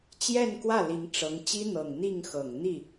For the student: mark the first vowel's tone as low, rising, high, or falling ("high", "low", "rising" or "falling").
falling